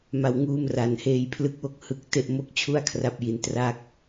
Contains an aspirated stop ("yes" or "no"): yes